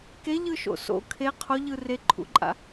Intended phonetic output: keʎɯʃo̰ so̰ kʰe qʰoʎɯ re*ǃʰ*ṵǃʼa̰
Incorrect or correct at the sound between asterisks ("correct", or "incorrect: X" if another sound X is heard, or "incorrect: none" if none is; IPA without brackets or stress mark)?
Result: correct